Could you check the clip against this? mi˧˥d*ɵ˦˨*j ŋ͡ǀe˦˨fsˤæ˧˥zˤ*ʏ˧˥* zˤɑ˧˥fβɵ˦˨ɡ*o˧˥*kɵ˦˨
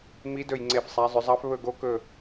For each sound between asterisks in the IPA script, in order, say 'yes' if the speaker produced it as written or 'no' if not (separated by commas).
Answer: yes, yes, yes